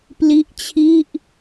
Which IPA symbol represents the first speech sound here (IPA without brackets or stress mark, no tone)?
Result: p